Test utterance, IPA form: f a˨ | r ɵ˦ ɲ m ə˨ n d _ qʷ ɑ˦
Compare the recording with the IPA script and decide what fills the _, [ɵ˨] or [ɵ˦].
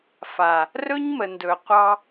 ɵ˨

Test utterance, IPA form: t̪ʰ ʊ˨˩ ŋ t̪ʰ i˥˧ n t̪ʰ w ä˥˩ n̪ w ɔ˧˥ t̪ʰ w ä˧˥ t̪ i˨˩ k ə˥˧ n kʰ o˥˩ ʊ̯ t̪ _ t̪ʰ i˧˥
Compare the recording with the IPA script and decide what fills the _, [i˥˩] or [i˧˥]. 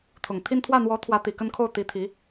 i˧˥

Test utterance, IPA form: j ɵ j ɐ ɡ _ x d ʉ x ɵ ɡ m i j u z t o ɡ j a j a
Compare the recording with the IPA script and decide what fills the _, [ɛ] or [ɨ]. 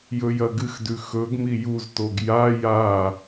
ɨ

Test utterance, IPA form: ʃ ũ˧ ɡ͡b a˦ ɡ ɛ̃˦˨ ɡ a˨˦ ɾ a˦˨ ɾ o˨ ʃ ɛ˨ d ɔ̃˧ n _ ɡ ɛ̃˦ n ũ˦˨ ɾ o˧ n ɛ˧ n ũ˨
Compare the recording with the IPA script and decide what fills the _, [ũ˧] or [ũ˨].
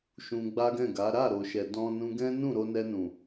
ũ˧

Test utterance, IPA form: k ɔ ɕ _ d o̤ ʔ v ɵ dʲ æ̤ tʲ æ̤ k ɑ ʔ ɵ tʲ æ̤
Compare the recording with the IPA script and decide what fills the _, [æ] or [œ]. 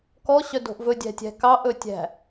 œ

